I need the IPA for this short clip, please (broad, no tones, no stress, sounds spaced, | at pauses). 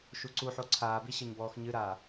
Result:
ʃ u ǀ u ħ o ǀʰ aː b i ɕ ɘ ɲ b ɔː x ɲ ɨ ɾ aː